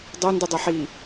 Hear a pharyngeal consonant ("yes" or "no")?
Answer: yes